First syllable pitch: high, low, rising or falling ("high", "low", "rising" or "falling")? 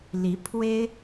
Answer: rising